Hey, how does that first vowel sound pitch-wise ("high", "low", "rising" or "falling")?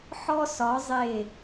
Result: high